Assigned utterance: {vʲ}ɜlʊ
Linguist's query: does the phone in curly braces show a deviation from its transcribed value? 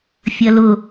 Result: yes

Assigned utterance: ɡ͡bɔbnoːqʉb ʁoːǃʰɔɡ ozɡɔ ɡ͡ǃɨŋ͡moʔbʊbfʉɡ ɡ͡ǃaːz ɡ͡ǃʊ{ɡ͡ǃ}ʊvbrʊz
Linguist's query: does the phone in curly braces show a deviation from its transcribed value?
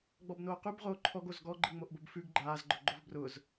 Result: no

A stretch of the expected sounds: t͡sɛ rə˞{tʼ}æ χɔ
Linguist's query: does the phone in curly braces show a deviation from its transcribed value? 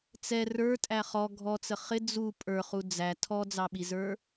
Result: no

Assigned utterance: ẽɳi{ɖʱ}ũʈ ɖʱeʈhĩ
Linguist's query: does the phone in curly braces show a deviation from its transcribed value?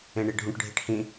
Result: no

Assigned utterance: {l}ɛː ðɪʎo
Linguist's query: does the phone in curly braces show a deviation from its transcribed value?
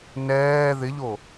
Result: yes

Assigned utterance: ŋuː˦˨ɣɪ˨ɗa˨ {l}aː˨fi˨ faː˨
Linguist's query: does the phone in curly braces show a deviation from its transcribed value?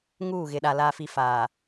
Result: no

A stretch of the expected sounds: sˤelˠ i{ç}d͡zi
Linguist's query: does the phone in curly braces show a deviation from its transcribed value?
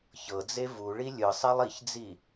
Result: no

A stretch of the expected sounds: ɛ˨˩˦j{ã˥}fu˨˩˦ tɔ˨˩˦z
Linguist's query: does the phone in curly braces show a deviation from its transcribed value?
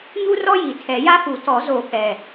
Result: yes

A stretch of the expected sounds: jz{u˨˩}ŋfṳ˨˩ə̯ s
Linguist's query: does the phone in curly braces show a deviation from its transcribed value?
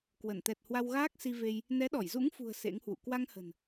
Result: yes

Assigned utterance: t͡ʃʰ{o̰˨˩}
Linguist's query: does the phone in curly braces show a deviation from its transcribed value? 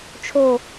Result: yes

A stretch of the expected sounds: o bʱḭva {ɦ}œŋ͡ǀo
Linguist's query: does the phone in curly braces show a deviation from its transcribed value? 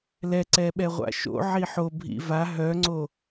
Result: no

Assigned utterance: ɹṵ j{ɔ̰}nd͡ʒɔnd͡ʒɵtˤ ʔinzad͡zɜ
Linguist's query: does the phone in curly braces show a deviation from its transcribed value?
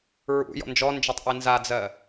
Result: no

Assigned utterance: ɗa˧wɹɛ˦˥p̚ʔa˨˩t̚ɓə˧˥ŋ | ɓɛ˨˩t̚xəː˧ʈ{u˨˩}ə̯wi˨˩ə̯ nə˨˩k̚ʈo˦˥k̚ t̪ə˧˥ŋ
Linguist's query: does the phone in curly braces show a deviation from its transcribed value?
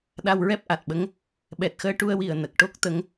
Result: yes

